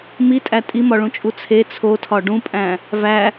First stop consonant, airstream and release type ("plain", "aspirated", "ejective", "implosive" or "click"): ejective